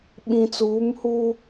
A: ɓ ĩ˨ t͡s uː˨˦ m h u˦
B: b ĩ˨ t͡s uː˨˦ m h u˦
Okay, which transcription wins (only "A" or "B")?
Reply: A